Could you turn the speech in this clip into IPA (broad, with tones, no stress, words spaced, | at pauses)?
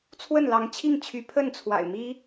t͡sʰwə˥˩nlɑ˧˥ŋt͡ɕʰi˥˩ŋt͡ɕʰy˧˥ pʰə˥˩nt͡sʰwa̰˨˩ɪ̯ mi˥